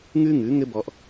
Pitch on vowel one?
high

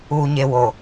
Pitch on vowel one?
low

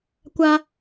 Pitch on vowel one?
high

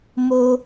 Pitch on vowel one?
high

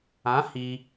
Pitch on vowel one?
rising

